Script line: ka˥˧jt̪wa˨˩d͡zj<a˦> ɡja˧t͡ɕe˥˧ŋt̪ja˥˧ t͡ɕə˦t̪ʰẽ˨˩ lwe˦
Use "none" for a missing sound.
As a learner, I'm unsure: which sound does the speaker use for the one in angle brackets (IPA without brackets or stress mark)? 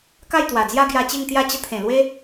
a˦